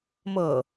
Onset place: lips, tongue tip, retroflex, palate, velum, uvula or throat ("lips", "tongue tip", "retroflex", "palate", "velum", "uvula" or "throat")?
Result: lips